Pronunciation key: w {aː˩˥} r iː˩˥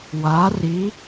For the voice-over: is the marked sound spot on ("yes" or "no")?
yes